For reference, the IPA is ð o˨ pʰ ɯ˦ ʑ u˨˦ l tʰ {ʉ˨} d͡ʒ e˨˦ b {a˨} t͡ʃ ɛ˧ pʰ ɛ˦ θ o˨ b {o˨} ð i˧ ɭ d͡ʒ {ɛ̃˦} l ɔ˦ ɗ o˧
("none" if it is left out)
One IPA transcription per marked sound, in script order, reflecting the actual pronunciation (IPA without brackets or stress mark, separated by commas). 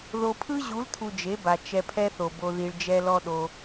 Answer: u˨, a˨, o˧, ɛ˦